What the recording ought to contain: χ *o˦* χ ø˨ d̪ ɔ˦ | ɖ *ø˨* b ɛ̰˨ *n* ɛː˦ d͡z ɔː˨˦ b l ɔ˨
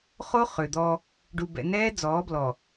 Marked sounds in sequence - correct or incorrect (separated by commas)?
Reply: correct, incorrect, correct